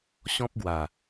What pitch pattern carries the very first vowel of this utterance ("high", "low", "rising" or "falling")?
high